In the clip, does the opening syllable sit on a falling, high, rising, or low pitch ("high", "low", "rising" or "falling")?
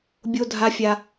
high